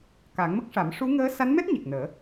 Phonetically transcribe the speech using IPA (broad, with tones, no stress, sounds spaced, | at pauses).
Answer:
k a˨˩˦ ŋ m ə˦˥ k̚ ʂ a˨˩˦ m ʂ u˧˥ ŋ əː˧˥ s a˧˥ n m ɛ˦˥ t̚ ɲ e˨˩ k̚ n əː˨˩˦